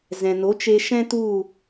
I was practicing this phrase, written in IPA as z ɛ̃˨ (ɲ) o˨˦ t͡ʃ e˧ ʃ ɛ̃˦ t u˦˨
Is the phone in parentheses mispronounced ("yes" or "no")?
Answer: yes